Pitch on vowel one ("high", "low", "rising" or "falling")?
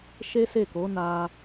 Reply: high